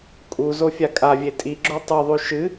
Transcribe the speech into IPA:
kʼ u z o fʲ a kʼ a vʲ e tʼ i ɡ͡ǁ o tˤ ɨ ðˤ ʉ ʃ ɨ

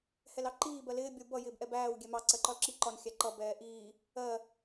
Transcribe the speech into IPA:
h ɛ l ɑ ǃ iː b ɜ l ɪː bʲ ʌ u̯ b ʌ j ɪː b ʔ ɛ b æː w ɡʲ ɛ m ɑ ǀ ɜ ǃ ɒ l ǁ i ǃ ɒ n xʲ æ ǃ ʌ b ɛː ʔ iː | ɜ

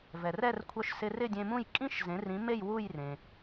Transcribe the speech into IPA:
v ɛ˩ r ɛ˥˩ r kʷʰ œ˧ ʃ s ɪ˧ r ɪ˥˩ dʲ ẽ˧ m ũ˥˩ j kʼ ĩ˥ ʃ z ẽ˩˥ r ĩ˩˥ m e˥˩ j w u˥˩ j r ẽ˩

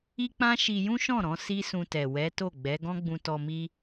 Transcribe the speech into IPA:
i˦ k͡p ã˦ ʃ i˧ j ũ˦ ʃ ɔ̃˦˨ ɾ ɔ̃˧ s i˦ s ũ˧ t ɛ˨ w ɛ˨˦ t o˦˨ ɡ͡b ɛ˨˦ ɡ ɔ̃˦ ɡ͡b ũ˧ t ɔ˧ m i˦

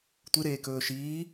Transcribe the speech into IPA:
tʷ ɨ ɾ eː k ɵː ʃ iː

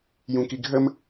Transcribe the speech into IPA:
j ũ k i ɡʱ ə m

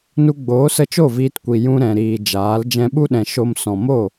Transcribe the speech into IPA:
n u˧ ɡ͡b oː˨˦ s ə˧ t͡ʃ o˦˨ v iː˧ t kʷ i˨ j ũ˧ ɾ ɛ̃˨ ɾ iː˨ d͡ʒ aː˨˦ l d͡ʒ ɛ̃˧ ɓ u˦ ɗ ɛ̃˨ ʃ o˦ m s ɔ̃˨ m o˦˨

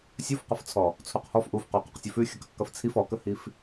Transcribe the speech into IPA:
sʲ u f q ə f t͡sʰ ɔ | t͡sʰ u q h ɔ f ʔ u f q ɔ q ɔ q sʲ ɵ f ʉ xʲ ə k ə q k ə f t͡sʰ i f ɔ k ə h i f

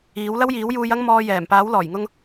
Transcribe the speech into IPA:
iː˨˥ w l ɐ˥ w j iː˨˥ w j uː˧ j ɐ˥ ŋ m ɔː˧ j ɛː˨˩ m p aː˨˥ w l ɔː˨˩ j ŋ ʊ˧ ŋ

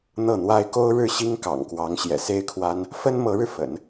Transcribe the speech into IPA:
n̪ ɤ˥˩ n̪ w a˥ ɪ̯ k o˥ ʊ̯ ɻ ɻ̩˥˩ ɕ i˥ ŋ k ɑ̰˨˩ ŋ k w ɑ˧˥ ŋ ɕ j ɛ̰˨˩ s e˥ ɪ̯ kʰ w a˥ n | f ə˥ n m ɤ˧˥ ɻ ɻ̩˧ f ə̰˨˩˦ n

